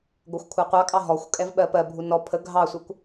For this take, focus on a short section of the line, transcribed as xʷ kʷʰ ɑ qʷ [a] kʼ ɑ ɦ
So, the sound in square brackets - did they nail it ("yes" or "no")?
no